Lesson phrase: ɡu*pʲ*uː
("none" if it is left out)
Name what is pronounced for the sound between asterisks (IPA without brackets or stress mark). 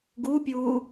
pʲ